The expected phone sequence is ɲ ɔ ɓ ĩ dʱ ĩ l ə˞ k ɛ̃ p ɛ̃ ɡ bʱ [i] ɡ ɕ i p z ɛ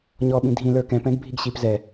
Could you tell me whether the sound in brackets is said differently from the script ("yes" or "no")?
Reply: no